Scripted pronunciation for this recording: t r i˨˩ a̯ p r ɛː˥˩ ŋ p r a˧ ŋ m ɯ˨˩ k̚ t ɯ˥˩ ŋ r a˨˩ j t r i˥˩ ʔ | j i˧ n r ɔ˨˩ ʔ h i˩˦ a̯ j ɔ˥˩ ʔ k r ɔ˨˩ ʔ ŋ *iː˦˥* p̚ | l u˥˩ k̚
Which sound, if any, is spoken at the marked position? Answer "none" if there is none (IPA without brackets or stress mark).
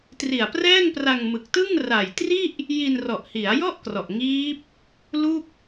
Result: iː˦˥